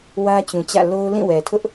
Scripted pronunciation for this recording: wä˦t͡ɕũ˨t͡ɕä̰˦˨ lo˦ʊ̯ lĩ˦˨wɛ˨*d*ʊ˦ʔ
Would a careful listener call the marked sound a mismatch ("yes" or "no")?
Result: yes